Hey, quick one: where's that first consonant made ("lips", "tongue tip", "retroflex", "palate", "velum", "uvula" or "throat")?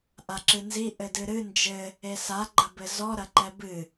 throat